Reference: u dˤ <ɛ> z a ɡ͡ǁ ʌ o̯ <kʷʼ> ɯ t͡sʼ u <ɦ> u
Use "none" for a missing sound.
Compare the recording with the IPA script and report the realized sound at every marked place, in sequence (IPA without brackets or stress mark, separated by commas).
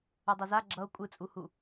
ɛ, kʷʼ, h